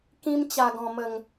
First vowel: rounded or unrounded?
unrounded